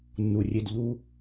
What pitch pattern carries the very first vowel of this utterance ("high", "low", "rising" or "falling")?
low